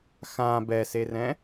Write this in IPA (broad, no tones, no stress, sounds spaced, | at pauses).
x ã b ɛ s e r ɛ̃